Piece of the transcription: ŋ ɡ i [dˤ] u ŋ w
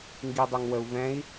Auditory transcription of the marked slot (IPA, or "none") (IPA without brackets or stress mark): dˤ